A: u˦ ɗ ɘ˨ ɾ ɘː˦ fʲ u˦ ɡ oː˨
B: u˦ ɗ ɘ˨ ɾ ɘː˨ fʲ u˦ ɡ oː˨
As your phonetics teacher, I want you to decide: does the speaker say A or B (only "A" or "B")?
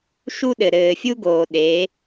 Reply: B